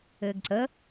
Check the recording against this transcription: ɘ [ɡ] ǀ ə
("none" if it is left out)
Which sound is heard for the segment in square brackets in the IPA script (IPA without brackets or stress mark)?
ɡ